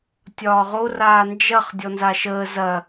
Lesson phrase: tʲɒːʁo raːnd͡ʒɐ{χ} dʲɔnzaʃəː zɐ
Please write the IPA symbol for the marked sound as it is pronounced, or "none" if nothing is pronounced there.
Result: χ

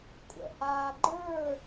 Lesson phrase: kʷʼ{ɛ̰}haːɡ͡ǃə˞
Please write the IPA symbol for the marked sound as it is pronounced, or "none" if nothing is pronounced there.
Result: ɛ̰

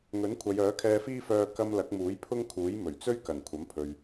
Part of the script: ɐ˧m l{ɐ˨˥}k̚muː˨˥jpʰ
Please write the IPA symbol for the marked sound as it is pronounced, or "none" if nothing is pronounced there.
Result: ɐ˨˥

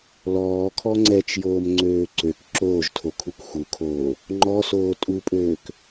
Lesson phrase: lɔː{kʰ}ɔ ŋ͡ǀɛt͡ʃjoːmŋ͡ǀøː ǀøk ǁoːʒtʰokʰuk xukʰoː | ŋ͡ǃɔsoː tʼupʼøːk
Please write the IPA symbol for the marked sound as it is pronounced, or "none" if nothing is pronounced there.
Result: kʰ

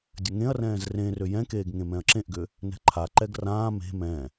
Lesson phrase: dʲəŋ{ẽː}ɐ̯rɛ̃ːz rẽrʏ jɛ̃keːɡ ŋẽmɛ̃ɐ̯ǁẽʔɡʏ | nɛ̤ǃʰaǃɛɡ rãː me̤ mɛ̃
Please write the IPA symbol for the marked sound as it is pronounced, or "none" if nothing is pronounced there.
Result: ẽ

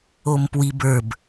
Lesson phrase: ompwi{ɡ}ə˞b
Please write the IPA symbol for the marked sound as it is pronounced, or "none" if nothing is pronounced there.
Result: b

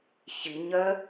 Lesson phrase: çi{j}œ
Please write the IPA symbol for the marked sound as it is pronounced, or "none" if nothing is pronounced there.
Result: ɲ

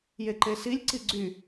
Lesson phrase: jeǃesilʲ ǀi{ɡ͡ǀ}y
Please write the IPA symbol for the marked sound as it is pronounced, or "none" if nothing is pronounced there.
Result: ɡ͡ǀ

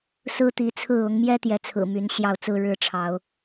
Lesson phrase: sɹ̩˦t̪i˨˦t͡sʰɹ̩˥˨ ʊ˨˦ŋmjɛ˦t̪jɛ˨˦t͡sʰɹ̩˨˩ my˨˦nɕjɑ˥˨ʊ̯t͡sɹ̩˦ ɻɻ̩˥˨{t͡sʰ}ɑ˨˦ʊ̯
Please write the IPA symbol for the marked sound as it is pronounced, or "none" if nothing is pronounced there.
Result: ʈ͡ʂʰ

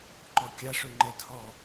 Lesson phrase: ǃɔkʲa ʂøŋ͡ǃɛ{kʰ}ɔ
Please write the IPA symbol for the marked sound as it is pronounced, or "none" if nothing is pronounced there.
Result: tʰ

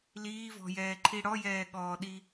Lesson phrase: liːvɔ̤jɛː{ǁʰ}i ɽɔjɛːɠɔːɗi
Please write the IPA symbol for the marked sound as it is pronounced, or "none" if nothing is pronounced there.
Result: ǃʰ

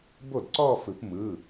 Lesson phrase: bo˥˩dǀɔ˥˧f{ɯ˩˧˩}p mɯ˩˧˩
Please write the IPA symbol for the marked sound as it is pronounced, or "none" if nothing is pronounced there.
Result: ɯ˨˩˦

